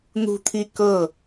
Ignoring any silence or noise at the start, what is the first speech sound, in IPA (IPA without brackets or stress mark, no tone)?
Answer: n̪